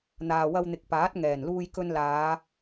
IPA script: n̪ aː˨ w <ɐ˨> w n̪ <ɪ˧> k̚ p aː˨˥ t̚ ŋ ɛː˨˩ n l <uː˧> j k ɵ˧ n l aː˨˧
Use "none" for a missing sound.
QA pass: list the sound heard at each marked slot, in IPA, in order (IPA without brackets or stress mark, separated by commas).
ɐ˧, ɪ˨, uː˧